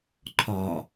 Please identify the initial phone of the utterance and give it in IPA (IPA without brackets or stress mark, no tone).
ǃʰ